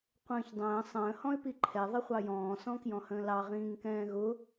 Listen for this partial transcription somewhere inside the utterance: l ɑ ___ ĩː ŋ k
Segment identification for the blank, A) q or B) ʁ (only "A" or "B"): B